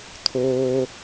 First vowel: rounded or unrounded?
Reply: rounded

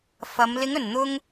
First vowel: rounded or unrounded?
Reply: unrounded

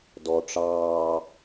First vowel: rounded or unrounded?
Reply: rounded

